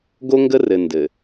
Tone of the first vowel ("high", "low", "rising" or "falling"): high